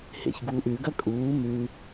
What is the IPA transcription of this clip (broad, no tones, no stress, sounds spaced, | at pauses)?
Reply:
h ḛ ç ɡ uː ʔ ʉ ɡ ɐ kʼ uː m ʉ